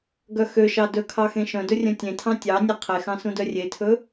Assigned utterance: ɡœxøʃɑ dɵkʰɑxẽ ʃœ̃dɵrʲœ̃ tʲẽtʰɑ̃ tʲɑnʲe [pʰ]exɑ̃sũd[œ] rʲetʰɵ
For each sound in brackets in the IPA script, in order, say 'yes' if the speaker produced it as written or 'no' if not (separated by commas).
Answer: no, yes